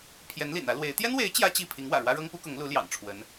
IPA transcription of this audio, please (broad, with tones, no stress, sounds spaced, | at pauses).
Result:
pʰ j ɛ˧˥ n l ḭ˨˩ n ä˧˥ l w e˧˥ ɪ̯ t̪ j ɛ˥ n w e˧˥ ɪ̯ t͡ɕ j ä˥ t͡ɕ i˥˩ pʰ i˧˥ ŋ w ä̰˨˩ ɻ w ä˥ ɻ ɤ˥ ŋ p u˥ k ʊ˧˥ ŋ l u˧˥ l j ɑ̰˨˩ ŋ ʈ͡ʂʰ w ə˧˥ n